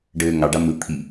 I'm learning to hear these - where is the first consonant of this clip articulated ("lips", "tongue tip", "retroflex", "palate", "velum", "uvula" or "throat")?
retroflex